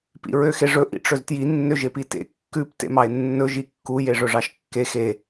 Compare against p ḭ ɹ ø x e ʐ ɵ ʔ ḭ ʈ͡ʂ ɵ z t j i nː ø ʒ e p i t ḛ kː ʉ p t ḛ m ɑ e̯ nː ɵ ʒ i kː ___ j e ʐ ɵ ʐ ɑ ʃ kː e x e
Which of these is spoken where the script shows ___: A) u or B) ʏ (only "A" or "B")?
A